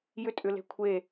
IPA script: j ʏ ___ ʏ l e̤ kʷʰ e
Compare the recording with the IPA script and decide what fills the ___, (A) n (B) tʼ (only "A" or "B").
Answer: B